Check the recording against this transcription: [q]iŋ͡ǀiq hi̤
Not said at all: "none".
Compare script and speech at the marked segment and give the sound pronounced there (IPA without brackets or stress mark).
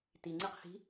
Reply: t